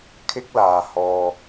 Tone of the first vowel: high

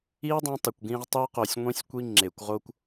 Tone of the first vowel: high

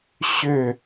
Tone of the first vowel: falling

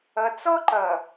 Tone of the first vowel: low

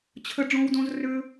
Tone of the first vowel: high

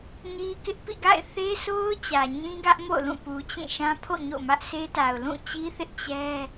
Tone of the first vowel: high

